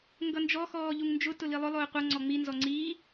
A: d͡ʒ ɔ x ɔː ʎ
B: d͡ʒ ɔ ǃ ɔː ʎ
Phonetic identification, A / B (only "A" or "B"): A